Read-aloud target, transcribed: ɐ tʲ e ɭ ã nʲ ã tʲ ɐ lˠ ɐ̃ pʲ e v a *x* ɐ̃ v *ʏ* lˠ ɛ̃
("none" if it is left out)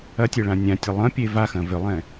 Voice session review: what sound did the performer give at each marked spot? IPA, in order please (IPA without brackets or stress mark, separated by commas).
x, ʏ